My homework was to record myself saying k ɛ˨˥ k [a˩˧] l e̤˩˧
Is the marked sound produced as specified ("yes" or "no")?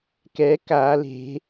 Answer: yes